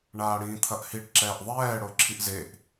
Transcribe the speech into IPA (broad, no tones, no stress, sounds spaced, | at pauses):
ɳ aː ɽ ĩː t̪ʰ ɐ ʔ h i ɖ ǁ ɛː ʔ ðˤ ɛː ɽ o ǁʰ i ʔ z e ʔ